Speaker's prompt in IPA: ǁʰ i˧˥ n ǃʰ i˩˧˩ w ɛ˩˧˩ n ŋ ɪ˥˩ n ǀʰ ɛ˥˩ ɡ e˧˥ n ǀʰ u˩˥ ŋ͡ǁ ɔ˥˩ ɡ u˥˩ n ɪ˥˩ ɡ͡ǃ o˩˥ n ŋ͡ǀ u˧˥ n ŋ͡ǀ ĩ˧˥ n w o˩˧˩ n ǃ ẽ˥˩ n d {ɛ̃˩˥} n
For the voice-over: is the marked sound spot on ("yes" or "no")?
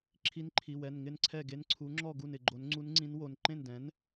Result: yes